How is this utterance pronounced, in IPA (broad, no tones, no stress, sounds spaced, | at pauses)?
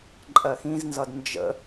ǃʼ ɜ x ĩ z n z ʌ d n d͡ʒ ə̰